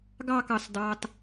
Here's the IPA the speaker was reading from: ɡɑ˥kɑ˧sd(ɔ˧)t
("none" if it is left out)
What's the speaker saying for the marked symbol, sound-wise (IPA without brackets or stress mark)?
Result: ɑ˧